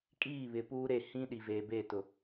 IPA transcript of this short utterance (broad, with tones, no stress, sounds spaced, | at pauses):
kʼ iː˦˨ β ɪ˨ p uː˦ ɾ e˦˨ h ĩ˦ ɗ i˨ v eː˨ b eː˦˨ t ʊ˨